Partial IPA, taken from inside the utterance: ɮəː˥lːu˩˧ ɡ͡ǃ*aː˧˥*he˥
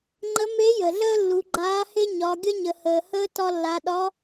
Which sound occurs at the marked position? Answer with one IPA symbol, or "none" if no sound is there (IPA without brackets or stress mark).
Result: aː˧˥